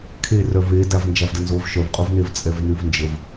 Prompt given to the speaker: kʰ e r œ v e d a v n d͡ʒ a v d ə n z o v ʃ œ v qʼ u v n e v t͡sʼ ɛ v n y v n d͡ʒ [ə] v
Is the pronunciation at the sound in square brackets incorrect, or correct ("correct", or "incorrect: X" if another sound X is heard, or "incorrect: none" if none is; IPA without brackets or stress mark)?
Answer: correct